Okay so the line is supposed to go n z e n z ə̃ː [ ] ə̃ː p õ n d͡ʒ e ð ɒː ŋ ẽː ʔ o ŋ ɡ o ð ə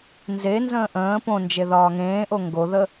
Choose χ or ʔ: ʔ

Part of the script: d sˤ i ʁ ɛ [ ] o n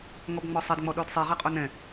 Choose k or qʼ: qʼ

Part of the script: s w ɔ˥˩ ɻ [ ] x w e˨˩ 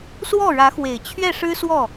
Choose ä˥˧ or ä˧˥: ä˧˥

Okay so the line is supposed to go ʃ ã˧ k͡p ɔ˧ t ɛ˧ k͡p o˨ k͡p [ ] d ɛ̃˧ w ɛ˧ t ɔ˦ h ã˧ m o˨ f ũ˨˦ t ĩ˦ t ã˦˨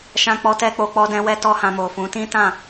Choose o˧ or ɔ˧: ɔ˧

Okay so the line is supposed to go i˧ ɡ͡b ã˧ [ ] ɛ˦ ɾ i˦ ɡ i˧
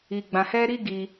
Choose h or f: h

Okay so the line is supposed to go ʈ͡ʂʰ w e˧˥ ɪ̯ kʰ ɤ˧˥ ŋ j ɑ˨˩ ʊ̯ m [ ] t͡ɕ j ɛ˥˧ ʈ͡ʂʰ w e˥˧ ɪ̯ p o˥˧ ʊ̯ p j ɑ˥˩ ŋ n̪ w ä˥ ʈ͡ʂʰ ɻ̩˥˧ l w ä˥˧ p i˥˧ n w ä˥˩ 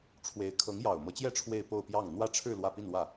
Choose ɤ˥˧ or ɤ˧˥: ɤ˧˥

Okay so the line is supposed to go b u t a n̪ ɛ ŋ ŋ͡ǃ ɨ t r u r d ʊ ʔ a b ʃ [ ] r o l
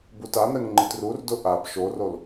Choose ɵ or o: o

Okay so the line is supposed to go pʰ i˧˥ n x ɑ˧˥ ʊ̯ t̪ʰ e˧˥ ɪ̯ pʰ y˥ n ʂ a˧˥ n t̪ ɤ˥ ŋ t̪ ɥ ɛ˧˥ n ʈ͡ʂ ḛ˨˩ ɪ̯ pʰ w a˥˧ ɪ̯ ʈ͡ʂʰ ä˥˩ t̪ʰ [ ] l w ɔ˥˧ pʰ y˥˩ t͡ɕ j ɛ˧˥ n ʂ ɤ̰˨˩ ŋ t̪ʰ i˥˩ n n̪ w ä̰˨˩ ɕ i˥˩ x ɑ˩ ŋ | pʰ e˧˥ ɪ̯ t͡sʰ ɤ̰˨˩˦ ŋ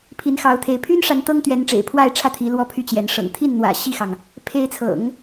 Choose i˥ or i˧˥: i˧˥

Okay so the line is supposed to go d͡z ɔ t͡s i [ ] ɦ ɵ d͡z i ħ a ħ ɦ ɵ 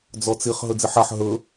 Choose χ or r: χ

